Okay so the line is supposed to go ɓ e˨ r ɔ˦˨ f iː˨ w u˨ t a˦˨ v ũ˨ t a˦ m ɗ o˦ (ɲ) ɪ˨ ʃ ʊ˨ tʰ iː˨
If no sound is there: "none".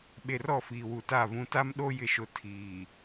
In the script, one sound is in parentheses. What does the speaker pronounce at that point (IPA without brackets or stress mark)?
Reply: j